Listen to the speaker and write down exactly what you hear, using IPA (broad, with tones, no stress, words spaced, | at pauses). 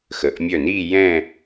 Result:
xə˩˧ʔmʲœ˧˩ni˥˧ jɛ̃˥˧